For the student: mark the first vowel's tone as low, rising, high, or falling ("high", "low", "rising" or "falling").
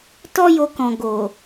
high